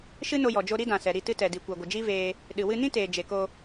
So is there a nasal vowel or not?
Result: yes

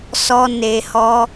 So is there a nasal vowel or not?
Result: no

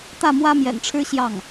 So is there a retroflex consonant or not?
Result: yes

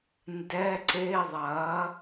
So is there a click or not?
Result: yes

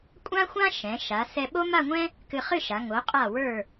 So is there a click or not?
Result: no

